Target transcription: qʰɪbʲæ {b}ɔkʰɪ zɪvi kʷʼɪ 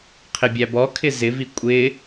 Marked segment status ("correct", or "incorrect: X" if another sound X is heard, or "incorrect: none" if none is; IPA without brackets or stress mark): correct